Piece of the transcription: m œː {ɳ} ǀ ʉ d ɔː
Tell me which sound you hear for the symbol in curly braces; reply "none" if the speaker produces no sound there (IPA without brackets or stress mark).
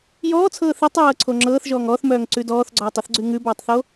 ŋ